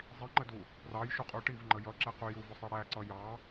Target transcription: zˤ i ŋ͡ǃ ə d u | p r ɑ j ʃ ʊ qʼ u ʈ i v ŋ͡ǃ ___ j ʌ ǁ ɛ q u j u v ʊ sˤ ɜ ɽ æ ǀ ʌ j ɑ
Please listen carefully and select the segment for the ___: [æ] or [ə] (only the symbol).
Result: ə